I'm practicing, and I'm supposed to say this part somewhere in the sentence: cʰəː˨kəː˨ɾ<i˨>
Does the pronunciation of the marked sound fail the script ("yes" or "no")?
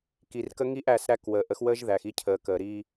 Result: yes